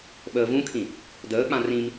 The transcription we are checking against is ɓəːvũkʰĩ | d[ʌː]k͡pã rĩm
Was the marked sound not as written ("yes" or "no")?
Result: yes